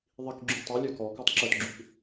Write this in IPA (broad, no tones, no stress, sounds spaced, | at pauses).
ðˤ i k ɡ͡ǁ y tˤ œ lʲ œ k ɔ k ɔ tˤ ǁ œ t ɡ͡ǁ y k